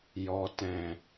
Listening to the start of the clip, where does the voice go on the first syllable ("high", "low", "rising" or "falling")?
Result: low